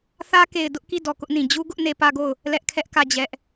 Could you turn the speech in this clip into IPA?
θ ä˦ k e˨ ɪ̯ d ʊ˦ ʔ k i˦˨ d ɔ˨ k ʊ˦ ʔ n ĩ˨ d͡ʑ u˦ ɡ ʊ˦ ʔ n e˦ p ä˦ ɡ o˦˨ ʊ̯ | l ɛ˦ ʔ kʰ ɛ˦ ʔ k ä˦˨ d͡ʑ ɛ˦ ʔ

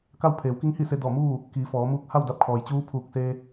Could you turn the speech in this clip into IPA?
k a˥˨ w pʰ eː˩˧ w k i˧˥ ŋ h i˥˨ s e˧ d ɔː˧˩ m uː˥˨ | k iː˩˧ f ɔː˩˧ m uː˧ k̚ h a˥˨ w d a˧ p̚ kʰ ɔː˩ j t͡ɕ uː˧˥ pʰ uː˧˩ k̚ s e˧

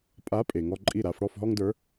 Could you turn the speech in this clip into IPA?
pʼ a˨˥ pʼ e˩ ŋ ɔ˦ ǃʼ i˥˩ ɾ a˨˥ f ɽ ɔ˥˩ f ɦ ɔ˦ ŋ d ə˞˨˥

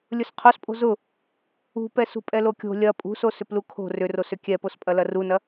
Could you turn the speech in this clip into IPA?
lʲ ʊ s qʰ o s pʼ o̤ z ʊ | ṳ p ɛ s ṳ pʼ ɛ l o kʲ o̤ lʲ ɐ pʼ ṳ s o s ʏ p l u kʰ o̤ r ʏ r o s ʏ kʲ ɛ p o s pʼ ɐ l ɐ r u n ɐ

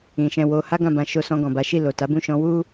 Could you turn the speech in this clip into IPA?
ĩ˨ ʃ ɛ̃˨ w o˧ h a˦ ɡ ã˦˨ b ã˧ ʃ o˧ s ɔ̃˧ ɡ ɔ̃˨ b a˨˦ ʃ i˦˨ l o˨ t a˨˦ b ũ˦˨ ʃ ɔ̃˨˦ w u˦

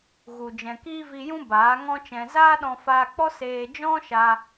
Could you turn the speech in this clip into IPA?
ɣ u˨ d͡ʒ ɛ̃˨ k i˦ v i˧ j ũ˦ b aː˨˦ ŋ ɔ̃˦ t͡ʃ ɛ̃˧ z aː˦ ɗ ɔ̃˧ f aː˧ k͡p ɔ˦ s eː˧ d͡ʒ ɔ̃˦ ʃ a˧

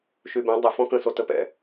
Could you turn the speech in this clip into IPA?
ʃ y b ɛ̃ dˤ ə f ɔ̃ k ə̃ s o t ə p ɛ̰

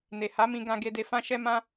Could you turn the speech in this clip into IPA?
n e˨ h a˨˦ m ĩ˧ ɡ ã˧ ɡ e˧ d e˧ f ã˦ ʃ ɛ˦ m ã˦

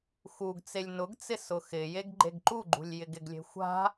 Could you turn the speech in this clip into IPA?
x u ɡ t͡s e lʲ n ʊ ɡ t͡s ɪ s ʊ x ɪ j e ɡ ɡ͡ǃ e ɡ ǃ u ɡ͡ǃ ṳ lʲ j ɪ ɡ ɪ ɡ lʲ e̤ xʷ a̤

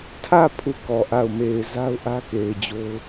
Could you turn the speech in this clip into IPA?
tʰ ä˦˨ pʰ u˦˨ k ɔ˨ ʔ a˦˨ ʊ̯ m e˨ ɪ̯ z a˦ ʊ̯ ʔ ä˦ k e˨ ɪ̯ d͡ʑ o˦ ʊ̯

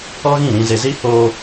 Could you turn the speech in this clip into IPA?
ɔ˦ ɣ ĩ˦˨ ɾ ĩ˨ z e˨ z i˦ h oː˦

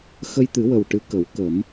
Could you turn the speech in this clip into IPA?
x ə˧ j t̪ ɨ˨˩˦ w ə˨˩ w ʈ ɨ˧˥ k ə˨˩˦ w k ə˨˩˦ m

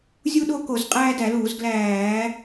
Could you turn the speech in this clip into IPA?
zʲ u˦ ɗ o˦ k o˧˩˧ z qʼ æː˦ d æ˧˩˧ l uː˧˩˧ z ɡ l æː˧˩˧

